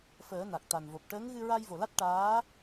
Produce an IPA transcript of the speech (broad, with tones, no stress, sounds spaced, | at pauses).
f əː˨˩˦ n a˨˩ k̚ t̪ a˨˩ n v o˨˩ p̚ ʈ əː˧˥ ŋ ɣ ɨ˧ ɹ a˧ j v o˨˩ l a˦˥ t̚ ʈ aː˧˥